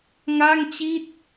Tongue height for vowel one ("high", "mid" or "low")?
low